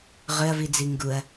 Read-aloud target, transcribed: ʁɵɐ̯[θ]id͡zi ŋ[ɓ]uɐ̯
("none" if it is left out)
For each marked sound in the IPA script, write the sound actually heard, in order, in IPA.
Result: v, ɡ

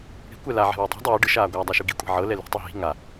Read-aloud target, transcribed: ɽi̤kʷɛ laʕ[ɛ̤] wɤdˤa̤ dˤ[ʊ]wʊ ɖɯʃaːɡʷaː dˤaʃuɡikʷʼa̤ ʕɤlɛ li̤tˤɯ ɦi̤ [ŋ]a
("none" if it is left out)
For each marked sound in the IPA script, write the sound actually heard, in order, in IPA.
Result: ɛ̤, ɯ, ŋ

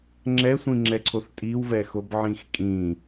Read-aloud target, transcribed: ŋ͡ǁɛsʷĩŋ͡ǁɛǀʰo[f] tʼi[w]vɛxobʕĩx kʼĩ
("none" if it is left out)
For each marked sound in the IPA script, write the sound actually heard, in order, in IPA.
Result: θ, w

